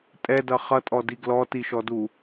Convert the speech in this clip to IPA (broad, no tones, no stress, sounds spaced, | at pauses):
tʼ ɛ d ʌ χ ʌ tʼ ɔ d i ɡ l ɔ t i ʃ ɔ d u